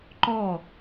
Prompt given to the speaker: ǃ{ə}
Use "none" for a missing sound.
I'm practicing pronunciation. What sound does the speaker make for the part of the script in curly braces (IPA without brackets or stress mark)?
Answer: ɔ